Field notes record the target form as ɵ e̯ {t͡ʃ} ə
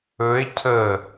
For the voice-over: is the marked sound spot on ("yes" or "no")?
no